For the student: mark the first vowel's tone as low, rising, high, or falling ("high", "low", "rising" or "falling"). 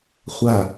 low